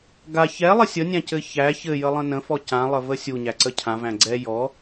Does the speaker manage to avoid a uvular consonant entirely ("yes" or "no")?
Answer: yes